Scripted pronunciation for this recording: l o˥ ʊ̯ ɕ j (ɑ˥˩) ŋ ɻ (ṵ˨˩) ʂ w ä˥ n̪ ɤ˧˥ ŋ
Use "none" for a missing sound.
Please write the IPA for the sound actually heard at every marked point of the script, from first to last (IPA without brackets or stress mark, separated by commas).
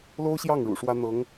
ɑ˥˩, ṵ˨˩